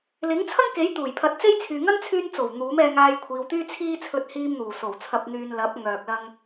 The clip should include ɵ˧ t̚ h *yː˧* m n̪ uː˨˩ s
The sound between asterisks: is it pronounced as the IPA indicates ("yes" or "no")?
no